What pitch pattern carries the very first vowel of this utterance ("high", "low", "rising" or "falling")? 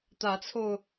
rising